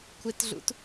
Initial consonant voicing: voiceless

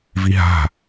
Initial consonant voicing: voiced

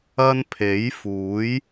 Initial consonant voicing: voiced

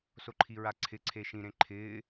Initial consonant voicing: voiceless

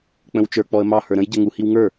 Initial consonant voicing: voiceless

